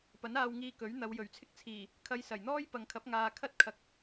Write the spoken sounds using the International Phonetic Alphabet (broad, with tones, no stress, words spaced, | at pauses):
pɐ˨˥naː˧wŋiː˧ kɵ˨˥ɥ n̪ɐ˨˧wjɵ˨˩ɥt͡sʰɪ˥k̚t͡sʰiː˨˩ | kʰɐ˧jsɐ˨˩jn̪ɔː˥j pɐ˨ŋkʰɐ˨˥p̚ŋaː˨ kʰɐ˥t̚ kʰɐ˨k̚